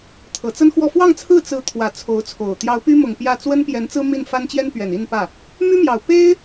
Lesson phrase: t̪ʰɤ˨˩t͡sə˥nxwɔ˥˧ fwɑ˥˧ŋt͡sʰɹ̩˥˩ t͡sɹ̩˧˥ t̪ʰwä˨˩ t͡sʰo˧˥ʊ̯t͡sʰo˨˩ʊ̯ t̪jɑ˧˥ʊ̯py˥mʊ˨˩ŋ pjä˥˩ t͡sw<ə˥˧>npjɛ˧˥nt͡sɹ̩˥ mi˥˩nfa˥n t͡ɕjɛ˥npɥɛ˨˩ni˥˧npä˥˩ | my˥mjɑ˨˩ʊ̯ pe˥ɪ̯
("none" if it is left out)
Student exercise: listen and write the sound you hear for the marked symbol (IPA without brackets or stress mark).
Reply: ə˥